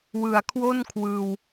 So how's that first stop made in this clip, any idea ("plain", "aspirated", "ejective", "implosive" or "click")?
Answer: aspirated